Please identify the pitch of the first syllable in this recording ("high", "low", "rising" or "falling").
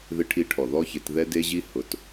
high